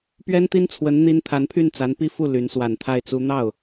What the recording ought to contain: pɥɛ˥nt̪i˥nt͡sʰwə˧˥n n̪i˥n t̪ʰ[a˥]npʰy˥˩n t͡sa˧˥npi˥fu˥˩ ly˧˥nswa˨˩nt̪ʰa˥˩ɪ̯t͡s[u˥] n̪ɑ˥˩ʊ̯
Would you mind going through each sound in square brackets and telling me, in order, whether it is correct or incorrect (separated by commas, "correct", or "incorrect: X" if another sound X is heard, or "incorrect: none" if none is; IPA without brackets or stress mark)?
incorrect: a˧˥, correct